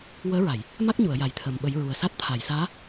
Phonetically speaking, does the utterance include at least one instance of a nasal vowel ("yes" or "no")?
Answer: no